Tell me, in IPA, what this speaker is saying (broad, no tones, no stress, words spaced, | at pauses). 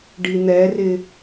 ɖin̪ɛrɪ